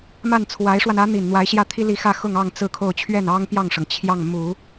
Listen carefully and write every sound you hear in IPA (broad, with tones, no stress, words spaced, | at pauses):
ma˥˩nt͡sʰwa˧˥ɪ̯ʂwa˧n ä˧˥n̪i˨˩n n̪wa˧˥ɪ̯ɕjä˥˩t̪ʰi˥ li˥˧ xä˥˧xʊ˥˧ŋ ɑ˥˧ŋt͡sɹ̩˥˧kʰo˥˧ʊ̯ t͡ɕʰɥɛ˥˩nɑ˥ŋpjɑ˥˩ŋʂɤ˩ŋ t͡ɕʰjɑ˥˩ŋmu˨˩˦